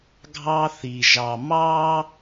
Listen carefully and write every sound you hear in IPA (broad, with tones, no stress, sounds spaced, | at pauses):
ɡʱ ɑ˦ θ i˨ ʒ ɑ˨ m ɑ˦